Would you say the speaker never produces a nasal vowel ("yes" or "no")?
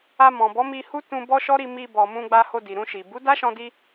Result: no